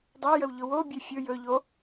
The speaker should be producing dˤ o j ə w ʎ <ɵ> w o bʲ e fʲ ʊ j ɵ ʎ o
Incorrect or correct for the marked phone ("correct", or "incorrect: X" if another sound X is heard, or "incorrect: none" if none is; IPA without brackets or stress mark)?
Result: incorrect: ʊ